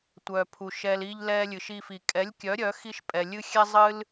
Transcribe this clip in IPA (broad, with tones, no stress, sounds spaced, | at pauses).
tʷ œ˨ pʰ u˨ ʃ ɛ˧ l i˦ ʎ l ɛ˦ lʲ ɨ˨ ʃ i˧ f i˨ kʼ ɛ˨˦ lʲ kʲ œ˨˦ ɾʲ œ˨˦ x i˦ ʃ pʼ ɛ˨ lʲ ɨ˦ xʲ ɛ˦ zˤ ɨ˦ l